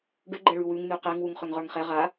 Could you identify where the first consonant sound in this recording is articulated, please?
retroflex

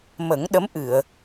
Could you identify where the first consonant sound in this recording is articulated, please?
labial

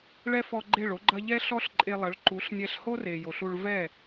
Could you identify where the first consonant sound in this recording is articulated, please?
retroflex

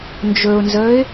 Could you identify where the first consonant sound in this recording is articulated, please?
alveolar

